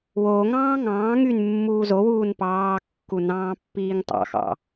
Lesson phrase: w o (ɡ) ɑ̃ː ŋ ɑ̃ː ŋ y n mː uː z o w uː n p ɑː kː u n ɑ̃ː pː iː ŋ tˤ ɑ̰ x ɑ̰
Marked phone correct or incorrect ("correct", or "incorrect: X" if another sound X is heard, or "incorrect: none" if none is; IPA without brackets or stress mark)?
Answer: incorrect: ŋ